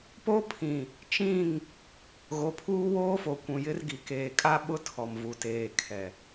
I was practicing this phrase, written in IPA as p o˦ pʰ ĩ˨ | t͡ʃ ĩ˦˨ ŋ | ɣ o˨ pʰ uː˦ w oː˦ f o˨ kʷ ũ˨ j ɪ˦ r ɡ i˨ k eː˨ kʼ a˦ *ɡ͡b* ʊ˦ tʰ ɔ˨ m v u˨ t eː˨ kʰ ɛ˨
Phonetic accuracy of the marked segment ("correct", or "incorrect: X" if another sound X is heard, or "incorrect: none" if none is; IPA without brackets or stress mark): incorrect: ɓ